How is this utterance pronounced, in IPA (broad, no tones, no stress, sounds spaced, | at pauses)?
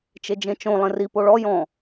t͡ʃ e d͡ʒ ẽ t͡ʃ õ lˠ ẽ r i p o ɭ ɔ j ɔ̃